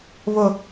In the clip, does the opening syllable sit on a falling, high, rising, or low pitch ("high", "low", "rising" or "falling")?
low